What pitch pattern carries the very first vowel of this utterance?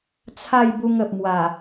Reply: falling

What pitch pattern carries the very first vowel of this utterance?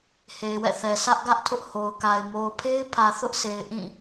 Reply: low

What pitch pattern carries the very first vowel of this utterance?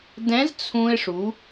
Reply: rising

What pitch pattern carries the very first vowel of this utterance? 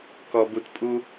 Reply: low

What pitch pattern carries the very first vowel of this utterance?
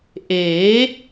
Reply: rising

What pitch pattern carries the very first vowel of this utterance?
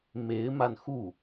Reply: rising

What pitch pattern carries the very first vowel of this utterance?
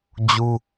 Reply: high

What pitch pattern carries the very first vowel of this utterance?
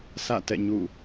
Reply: falling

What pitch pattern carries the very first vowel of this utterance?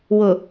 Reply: low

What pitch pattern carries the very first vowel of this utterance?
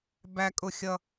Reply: high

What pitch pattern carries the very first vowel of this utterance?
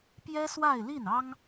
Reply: high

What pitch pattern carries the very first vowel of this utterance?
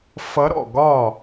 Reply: rising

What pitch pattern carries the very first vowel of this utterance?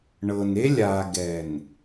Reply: low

